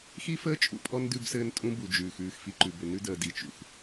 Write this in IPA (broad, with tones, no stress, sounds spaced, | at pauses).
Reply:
x i˦ f əː˦ t͡ʃʼ ṵ˨ pʼ ɔ˦ n d ʉ˦ b s ɘː˦ n tʼ ũ˦ b u˨ d͡ʒ ʉː˨ x ʉː˦˨ x f i˦ ǃ ʉ˨ b ʏ˨ n ʉ˦ d əː˨ d i˨ t͡ʃ ṵ˨ x